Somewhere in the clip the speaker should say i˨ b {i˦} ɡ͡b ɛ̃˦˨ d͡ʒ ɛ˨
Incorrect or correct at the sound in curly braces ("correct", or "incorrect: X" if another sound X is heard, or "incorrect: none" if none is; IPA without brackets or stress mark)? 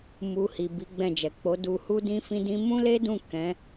incorrect: i˨˦